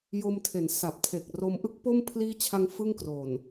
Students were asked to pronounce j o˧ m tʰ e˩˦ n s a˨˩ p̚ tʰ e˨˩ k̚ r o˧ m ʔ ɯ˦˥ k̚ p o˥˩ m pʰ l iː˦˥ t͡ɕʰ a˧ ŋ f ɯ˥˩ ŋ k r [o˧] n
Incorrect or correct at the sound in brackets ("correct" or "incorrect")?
incorrect